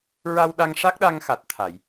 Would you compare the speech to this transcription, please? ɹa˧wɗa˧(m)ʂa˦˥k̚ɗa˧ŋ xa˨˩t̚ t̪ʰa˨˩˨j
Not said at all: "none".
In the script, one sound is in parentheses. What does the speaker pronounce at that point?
ŋ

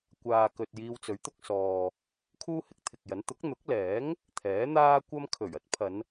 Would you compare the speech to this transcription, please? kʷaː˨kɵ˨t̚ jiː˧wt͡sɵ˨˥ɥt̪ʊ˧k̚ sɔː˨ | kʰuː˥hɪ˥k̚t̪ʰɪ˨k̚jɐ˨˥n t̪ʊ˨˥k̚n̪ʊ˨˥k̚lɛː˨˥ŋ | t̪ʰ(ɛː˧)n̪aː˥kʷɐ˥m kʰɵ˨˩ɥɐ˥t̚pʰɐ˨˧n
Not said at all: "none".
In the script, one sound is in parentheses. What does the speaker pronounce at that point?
ɛː˨˥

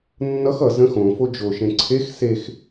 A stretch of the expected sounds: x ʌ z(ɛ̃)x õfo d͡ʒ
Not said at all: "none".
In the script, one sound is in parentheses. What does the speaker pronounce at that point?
ə̃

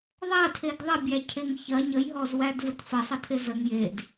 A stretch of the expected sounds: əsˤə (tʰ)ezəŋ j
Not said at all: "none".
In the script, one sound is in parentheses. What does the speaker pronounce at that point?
tʰ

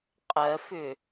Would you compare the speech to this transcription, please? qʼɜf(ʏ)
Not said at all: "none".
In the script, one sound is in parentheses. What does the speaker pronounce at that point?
ʏ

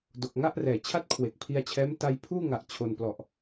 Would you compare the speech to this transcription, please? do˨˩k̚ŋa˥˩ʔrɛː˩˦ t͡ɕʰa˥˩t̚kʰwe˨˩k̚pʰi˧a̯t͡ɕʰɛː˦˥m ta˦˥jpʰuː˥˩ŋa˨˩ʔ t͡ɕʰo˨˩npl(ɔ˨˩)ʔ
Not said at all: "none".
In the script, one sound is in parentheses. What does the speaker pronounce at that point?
ɔ˨˩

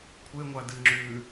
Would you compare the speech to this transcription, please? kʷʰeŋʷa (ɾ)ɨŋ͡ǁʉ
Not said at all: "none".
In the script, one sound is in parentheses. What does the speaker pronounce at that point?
d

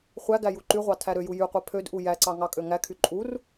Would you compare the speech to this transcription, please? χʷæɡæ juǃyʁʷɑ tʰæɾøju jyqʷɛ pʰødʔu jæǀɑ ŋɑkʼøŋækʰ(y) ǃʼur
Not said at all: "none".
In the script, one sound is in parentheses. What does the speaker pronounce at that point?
y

